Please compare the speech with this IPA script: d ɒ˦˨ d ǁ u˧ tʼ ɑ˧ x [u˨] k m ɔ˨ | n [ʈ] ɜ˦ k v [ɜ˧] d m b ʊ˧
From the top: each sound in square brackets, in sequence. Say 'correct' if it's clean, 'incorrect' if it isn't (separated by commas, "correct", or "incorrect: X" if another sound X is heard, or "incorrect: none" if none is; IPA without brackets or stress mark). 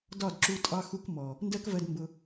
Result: incorrect: u˧, incorrect: d, correct